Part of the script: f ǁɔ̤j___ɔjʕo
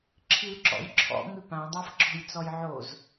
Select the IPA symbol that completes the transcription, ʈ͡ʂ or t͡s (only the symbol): t͡s